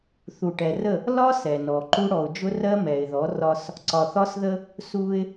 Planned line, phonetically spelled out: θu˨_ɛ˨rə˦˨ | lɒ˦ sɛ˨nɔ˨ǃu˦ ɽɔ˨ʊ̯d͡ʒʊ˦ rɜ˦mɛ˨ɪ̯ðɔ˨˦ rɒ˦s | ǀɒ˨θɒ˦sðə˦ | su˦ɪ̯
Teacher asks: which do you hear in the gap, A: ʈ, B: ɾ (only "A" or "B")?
A